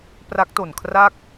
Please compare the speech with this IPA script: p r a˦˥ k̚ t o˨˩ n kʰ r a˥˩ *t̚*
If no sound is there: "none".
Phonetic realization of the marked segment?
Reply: k̚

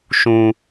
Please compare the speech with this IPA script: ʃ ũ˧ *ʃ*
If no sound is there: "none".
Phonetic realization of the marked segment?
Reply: none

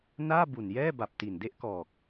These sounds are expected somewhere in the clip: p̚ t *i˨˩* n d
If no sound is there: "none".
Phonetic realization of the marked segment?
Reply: i˨˩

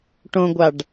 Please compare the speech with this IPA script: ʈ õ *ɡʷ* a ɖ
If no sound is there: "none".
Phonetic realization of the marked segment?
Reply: ɡʷ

